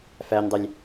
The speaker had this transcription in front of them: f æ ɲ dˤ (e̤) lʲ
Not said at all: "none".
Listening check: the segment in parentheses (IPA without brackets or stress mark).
e